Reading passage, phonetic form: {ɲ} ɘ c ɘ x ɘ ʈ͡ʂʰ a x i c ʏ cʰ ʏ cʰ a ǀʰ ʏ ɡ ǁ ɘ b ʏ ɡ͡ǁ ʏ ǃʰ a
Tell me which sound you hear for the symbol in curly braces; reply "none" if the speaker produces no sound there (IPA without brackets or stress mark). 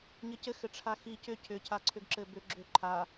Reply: ɲ